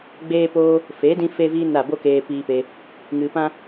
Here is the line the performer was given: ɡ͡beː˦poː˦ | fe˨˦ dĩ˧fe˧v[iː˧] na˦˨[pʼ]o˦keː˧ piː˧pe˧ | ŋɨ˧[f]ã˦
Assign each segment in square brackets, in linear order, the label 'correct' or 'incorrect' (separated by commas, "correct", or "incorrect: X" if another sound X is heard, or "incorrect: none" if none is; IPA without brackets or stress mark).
correct, incorrect: b, incorrect: p